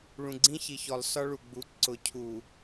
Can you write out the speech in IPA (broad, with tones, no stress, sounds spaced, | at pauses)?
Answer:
ɭ ũ˨ ɡ͡ǀ ĩ˦ ç i˨ ç ɔ˨ lˠ s ɒ˦ ɭ u˨ ɡ͡b u˨˦ ǀ ʊ˨˦ cʰ u˨